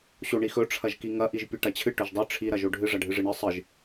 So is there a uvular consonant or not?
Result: no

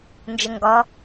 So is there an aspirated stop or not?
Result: no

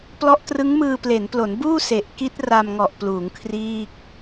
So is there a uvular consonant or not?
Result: no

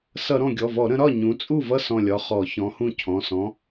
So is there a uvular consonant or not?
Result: yes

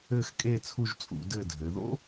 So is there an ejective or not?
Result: yes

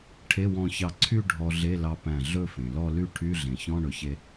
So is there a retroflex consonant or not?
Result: yes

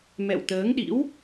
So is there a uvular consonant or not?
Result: no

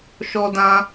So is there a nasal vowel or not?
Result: yes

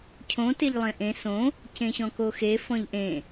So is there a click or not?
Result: no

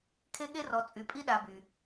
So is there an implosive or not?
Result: yes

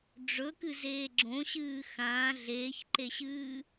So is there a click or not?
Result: yes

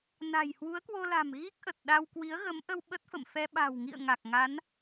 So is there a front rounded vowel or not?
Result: no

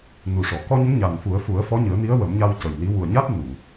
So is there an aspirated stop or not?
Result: no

